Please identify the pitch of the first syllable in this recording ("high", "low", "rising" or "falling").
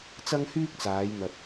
high